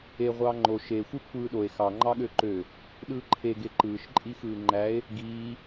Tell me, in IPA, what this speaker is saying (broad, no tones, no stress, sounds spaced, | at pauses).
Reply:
e ʁʷ ɑː ŋ͡ǃ o ʃ e xʷ ɯ kʷʰ ɯː ɗ o e̯ x ɑ ŋ͡ǃ ɑ ɠ ø ǃ ø | ɗ ɯː ǃʰ e ɡ e ǃ ɯː ʃ ǃʼ i x ɯː ŋ͡ǃ æ e̯ | ɡ iː